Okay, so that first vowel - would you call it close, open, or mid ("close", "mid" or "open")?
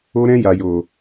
mid